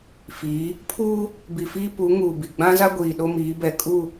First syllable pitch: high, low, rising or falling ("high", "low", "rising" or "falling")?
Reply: rising